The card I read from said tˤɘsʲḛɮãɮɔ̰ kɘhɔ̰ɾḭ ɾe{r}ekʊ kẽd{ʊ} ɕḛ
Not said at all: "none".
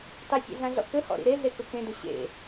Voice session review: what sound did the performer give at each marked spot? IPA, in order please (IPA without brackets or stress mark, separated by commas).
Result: ɮ, ʊ